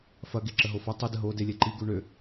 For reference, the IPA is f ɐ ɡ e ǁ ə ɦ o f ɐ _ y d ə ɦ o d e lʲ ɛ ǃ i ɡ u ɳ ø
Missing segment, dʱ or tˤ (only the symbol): tˤ